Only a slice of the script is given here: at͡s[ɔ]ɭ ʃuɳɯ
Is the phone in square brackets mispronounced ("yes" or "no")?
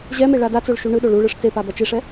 yes